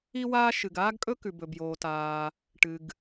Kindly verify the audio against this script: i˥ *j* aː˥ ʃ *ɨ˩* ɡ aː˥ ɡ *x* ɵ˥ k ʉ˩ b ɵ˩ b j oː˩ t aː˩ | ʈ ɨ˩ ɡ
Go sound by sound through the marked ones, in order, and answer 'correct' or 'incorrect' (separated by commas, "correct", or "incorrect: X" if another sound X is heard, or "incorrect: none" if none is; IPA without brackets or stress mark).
incorrect: w, correct, incorrect: kʼ